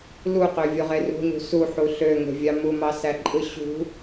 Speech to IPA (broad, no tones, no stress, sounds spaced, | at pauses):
l u q ø vʲ o ʁ e r ṳ ɲ ṳ s u ħ u ɬ ø ŋ e̤ vʲ ɑ m u m ɑ s æ ǃʼ ɯ ɕ ṳ